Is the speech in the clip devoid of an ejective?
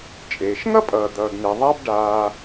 no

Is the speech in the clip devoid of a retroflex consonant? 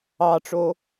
no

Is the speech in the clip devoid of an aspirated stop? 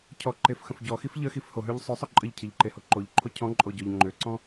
no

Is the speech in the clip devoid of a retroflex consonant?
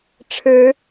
no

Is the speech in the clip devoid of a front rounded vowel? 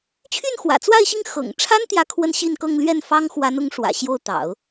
no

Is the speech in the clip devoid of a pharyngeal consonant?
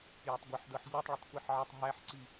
no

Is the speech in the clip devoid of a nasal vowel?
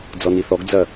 yes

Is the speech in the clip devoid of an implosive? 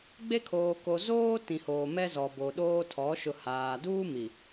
no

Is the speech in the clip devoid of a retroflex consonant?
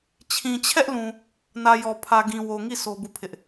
yes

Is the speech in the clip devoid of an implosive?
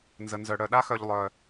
no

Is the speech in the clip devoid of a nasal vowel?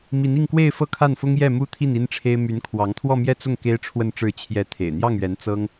yes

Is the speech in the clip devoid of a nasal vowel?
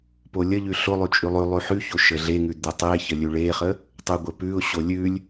yes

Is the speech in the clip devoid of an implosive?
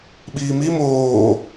no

